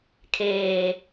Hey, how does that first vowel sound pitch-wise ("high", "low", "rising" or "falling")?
low